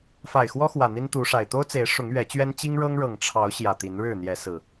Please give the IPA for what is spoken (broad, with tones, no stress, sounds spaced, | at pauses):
f a˨˩ ɪ̯ x w ɔ˦ x w ä˨˩ n̪ i˦ n t̪ u˨˦ ʂ a˨˩ ɪ̯ t̪ o˦ ʊ̯ t͡s e˨˦ ɪ̯ ʂ ʊ˨˦ ŋ ɥ ɛ˨˦ t͡ɕ ɥ ɛ˦ n t͡ɕ i˦ ŋ ɻ ɤ˦ ŋ ɻ ɤ˨˩ ŋ ʈ͡ʂʰ ɑ˨˦ ʊ̯ ɕ j ä˨˩ t̪ i˨˦ n ɻ ɻ̩˥˨ n̪ j ɛ˨˦ s ɹ̩˨˩